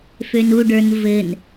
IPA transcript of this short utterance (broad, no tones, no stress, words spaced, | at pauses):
fønuɖə˞n vɘn